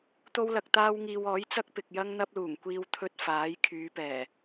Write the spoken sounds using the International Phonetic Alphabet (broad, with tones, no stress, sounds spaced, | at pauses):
t̪ o˥ w l ɐ˧ k̚ t̪ aː˥ w ŋ iː˧ w ɔː˨˥ j t͡s ɐ˥ k̚ p ɪ˨ k̚ j ɐ˥ ŋ n̪ ɐ˥ p̚ l uː˨˩ ŋ kʷ iː˧ w t̪ʰ ɵ˧ t̚ f aː˨˥ j kʰ yː˨˧ p ɛː˨˩